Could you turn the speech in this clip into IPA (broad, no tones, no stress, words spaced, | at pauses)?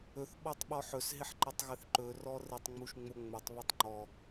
ɵθɓɔtˤ ɓɔħɵsɦɪħ ǃɪtˤɣɪθǃɵ rɔrɪtˤ ŋ͡muʃŋ͡moŋ͡mɵtˤ βɔtˤŋ͡ǃɔ